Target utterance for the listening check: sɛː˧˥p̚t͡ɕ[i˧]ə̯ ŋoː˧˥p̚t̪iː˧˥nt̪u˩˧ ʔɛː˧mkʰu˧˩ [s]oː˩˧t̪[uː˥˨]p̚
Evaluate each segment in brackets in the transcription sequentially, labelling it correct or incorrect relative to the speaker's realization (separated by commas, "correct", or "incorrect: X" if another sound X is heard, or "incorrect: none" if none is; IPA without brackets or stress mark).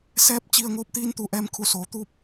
correct, correct, correct